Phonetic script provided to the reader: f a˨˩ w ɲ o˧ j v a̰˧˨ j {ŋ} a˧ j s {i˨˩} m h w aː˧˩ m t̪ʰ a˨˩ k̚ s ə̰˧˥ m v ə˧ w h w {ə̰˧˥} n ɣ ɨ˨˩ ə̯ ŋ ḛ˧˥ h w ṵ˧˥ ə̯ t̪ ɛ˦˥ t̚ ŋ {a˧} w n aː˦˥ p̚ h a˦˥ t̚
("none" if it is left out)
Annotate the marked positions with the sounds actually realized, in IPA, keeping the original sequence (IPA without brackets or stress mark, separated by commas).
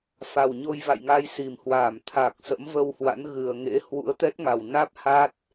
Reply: ŋ, i˨˩, a̰˧˥, a˨˩